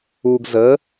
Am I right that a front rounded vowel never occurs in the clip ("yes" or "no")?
yes